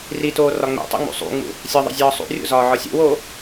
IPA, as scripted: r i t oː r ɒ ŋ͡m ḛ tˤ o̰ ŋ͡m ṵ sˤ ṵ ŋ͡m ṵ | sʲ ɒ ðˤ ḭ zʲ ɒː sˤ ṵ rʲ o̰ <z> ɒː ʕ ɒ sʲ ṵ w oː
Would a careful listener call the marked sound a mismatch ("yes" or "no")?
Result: no